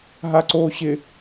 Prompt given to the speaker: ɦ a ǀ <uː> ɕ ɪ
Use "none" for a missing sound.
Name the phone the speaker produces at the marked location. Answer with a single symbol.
oː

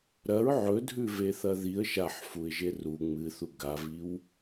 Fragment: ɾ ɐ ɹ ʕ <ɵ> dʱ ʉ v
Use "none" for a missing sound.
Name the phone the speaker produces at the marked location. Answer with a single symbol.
ɵ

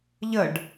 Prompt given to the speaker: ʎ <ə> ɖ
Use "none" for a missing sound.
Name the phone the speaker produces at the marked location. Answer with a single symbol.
ə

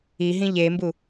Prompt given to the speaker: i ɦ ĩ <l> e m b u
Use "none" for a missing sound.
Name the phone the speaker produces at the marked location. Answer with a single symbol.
ʎ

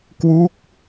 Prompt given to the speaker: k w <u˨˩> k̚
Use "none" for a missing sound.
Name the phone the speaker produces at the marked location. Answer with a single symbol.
u˦˥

